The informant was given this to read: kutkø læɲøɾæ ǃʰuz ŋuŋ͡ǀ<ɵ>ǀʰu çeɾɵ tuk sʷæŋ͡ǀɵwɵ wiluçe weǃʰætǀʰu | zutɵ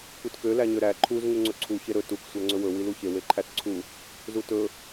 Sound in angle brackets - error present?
no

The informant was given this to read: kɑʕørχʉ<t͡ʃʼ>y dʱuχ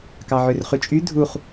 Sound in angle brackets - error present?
no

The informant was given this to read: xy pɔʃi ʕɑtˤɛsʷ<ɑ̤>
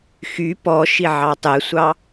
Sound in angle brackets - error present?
yes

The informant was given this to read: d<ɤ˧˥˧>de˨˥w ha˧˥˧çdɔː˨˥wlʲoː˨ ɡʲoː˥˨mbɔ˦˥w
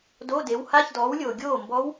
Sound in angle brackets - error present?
yes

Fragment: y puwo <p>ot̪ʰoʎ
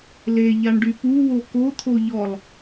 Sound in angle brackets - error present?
yes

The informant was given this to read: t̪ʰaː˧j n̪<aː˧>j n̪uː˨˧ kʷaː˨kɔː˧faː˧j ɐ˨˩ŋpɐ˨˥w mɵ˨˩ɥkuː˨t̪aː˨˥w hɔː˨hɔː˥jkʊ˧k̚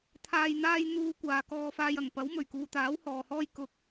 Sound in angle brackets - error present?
no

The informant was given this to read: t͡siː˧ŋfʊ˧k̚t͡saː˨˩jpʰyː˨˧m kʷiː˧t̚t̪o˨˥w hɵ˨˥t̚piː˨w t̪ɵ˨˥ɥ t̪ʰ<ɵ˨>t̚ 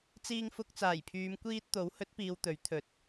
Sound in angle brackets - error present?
yes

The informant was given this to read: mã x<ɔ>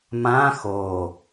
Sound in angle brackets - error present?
yes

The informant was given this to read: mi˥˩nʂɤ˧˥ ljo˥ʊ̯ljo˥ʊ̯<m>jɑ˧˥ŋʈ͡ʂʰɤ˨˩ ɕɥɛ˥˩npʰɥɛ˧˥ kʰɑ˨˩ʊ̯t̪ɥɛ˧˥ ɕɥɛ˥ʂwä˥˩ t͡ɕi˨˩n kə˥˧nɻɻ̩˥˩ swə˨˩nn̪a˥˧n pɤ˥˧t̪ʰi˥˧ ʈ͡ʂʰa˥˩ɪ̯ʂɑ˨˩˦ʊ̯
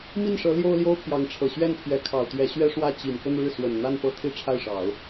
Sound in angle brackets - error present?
yes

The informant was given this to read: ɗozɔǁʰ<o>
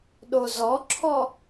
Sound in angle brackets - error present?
yes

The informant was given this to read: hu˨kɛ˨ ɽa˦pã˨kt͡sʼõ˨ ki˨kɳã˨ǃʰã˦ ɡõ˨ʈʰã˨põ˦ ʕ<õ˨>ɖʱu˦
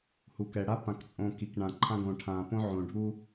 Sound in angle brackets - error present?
no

